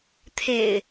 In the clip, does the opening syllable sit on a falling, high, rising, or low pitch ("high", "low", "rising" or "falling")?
low